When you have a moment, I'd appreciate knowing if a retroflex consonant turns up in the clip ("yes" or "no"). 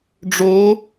yes